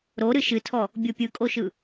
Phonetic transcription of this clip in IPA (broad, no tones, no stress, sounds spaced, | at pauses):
ɾ o ɾ ɨ ʃ ɨ tʰ ɔ | bʲ o pʲ ɯ kʼ o ʃ ɯ